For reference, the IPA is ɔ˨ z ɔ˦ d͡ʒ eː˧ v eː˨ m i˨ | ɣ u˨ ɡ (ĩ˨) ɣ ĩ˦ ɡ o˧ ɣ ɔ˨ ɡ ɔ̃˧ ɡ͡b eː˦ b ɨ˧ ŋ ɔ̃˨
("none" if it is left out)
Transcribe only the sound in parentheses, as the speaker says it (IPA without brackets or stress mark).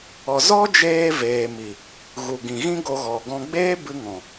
ĩ˨